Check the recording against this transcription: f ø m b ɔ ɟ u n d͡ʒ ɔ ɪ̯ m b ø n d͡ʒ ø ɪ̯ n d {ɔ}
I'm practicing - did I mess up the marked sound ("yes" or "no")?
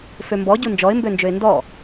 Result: no